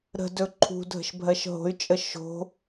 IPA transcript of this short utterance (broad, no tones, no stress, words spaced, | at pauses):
ɾə̤dɵ ǃʰṳ dʱə̤ʃbʱɜʃɦo̤y̯t͡ʃʼə ʃo̤